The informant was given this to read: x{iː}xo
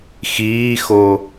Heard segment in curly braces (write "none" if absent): iː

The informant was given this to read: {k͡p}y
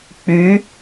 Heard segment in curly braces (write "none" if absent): k͡p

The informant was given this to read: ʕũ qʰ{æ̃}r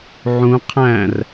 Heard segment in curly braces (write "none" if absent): æ̃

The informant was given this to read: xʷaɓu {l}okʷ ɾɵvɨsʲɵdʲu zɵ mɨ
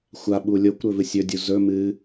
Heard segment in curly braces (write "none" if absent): lʲ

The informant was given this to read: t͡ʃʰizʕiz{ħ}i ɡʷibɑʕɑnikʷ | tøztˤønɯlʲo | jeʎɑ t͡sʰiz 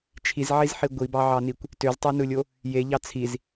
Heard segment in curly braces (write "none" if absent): ħ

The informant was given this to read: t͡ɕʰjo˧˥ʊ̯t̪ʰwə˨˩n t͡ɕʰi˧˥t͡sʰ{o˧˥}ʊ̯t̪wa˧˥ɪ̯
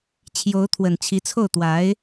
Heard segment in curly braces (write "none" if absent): o˥˩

